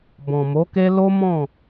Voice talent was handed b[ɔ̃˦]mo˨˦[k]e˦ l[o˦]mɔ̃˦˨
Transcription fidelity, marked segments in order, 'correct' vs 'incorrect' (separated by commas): incorrect, correct, correct